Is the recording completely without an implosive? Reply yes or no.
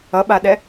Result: no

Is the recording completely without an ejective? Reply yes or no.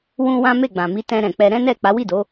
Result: yes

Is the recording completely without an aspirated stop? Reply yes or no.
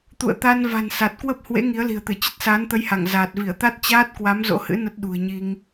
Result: yes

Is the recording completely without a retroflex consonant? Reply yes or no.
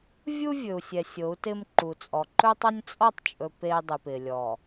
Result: yes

